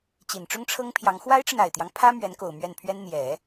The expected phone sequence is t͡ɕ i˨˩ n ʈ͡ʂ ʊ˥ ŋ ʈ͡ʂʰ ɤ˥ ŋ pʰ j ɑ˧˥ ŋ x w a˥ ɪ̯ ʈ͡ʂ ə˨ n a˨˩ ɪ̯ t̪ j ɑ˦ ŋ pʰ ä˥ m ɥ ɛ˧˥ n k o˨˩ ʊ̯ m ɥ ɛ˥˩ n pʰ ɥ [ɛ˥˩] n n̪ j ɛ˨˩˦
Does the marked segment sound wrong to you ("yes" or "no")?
yes